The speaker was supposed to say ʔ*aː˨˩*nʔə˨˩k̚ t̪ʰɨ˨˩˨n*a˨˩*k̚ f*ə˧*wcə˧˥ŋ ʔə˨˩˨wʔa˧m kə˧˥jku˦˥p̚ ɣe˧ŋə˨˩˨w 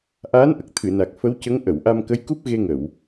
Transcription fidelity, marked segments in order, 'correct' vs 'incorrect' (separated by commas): incorrect, correct, incorrect